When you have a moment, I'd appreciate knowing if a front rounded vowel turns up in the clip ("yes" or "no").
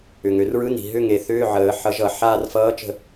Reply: yes